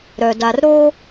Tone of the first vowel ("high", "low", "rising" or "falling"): low